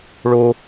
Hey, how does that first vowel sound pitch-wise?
high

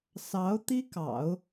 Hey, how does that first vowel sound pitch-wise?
rising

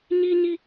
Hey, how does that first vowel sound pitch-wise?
high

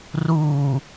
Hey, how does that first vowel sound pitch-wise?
low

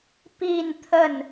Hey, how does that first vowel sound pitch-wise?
falling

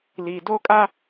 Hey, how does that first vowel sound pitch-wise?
low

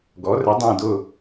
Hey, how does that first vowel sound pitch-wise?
rising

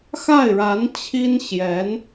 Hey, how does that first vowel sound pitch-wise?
falling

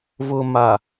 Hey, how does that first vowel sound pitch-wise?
low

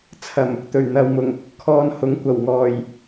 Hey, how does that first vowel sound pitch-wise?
low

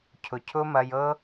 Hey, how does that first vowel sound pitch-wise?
low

